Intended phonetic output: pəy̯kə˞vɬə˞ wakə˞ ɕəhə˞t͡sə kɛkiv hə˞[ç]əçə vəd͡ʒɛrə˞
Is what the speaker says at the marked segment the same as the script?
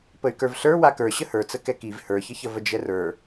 yes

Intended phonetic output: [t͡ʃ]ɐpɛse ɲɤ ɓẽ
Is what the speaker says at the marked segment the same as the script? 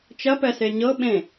yes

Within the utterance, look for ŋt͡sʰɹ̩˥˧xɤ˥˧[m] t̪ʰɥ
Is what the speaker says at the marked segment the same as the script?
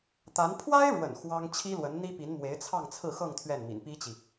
no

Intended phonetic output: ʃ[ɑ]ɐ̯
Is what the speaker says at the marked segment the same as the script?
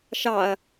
yes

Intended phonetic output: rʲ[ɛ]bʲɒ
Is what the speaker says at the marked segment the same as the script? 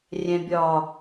no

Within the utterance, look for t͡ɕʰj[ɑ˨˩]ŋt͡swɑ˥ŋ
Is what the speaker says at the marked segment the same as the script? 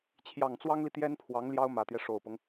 yes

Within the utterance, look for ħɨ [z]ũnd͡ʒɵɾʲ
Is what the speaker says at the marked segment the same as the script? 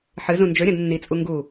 yes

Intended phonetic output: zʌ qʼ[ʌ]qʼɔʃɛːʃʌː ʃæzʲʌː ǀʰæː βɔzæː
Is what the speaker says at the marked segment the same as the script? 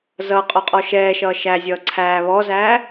no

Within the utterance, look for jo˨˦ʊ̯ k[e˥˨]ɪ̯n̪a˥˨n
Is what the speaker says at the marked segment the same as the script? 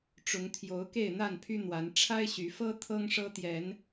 yes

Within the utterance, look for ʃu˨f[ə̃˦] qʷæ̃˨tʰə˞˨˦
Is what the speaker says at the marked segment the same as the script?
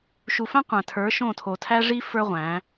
no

